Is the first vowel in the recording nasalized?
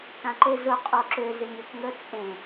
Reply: yes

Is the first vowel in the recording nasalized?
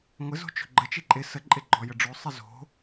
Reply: no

